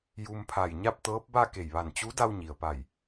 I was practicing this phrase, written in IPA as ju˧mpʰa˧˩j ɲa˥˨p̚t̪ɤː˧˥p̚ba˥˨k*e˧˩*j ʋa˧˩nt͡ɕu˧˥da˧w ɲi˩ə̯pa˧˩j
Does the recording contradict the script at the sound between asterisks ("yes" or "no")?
no